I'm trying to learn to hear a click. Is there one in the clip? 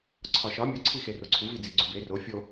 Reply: yes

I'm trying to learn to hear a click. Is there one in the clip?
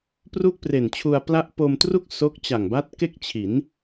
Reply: no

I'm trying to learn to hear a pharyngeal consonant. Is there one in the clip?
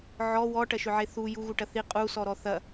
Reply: yes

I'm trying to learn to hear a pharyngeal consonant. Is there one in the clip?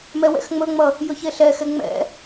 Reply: no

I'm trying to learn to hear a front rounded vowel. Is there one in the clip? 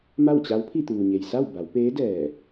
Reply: no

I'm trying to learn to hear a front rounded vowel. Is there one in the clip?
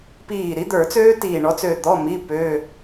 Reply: yes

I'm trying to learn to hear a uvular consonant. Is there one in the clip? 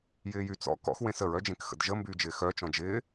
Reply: no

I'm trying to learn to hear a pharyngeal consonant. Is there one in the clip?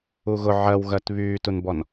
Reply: yes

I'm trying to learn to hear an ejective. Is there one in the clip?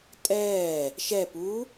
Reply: yes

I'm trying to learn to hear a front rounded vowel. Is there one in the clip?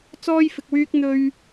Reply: yes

